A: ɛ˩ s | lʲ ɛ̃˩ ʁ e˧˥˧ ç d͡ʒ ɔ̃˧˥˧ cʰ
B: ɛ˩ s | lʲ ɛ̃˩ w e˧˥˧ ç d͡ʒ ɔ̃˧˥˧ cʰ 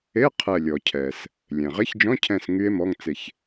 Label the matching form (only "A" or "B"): A